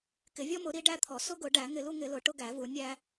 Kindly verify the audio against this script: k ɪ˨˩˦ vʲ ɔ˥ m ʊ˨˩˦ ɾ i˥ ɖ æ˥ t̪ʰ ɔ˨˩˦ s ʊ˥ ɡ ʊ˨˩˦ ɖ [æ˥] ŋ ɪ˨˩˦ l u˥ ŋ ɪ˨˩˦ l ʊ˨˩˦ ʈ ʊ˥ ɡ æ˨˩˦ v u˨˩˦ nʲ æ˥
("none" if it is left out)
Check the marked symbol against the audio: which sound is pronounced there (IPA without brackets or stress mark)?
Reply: æ˨˩˦